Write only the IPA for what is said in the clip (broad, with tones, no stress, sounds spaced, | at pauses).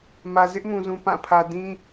m ä˨ z ɪ˦ ʔ m ũ˨ z ũ˨ p ã˦˨ pʰ ä˨ d ĩ˦